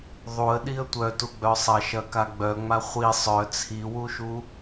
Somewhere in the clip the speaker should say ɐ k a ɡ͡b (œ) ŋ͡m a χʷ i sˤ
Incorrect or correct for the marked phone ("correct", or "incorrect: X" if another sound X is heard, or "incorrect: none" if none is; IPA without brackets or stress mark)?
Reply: correct